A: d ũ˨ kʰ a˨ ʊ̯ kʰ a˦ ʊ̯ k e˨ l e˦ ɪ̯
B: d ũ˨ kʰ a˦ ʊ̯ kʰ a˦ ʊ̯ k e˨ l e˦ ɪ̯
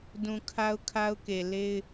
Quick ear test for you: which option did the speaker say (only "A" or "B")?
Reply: B